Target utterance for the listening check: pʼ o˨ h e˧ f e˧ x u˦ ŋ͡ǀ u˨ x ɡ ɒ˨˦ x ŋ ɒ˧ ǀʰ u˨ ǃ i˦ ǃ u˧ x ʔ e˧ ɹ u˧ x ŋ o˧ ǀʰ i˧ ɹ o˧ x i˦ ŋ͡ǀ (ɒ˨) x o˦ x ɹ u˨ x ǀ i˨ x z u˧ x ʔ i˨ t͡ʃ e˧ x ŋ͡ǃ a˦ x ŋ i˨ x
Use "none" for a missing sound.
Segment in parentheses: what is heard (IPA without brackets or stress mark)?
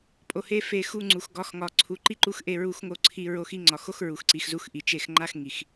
ɒ˨